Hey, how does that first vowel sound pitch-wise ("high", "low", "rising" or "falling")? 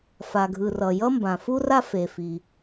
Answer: low